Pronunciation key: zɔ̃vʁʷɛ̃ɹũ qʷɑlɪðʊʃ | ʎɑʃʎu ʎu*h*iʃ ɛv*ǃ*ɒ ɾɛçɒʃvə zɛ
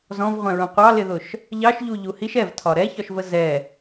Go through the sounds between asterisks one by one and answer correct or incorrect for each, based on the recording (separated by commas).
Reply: correct, incorrect